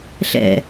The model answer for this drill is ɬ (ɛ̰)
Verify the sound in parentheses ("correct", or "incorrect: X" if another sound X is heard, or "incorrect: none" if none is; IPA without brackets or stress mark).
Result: correct